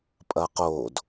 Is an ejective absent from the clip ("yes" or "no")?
no